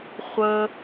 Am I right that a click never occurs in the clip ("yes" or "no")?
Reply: yes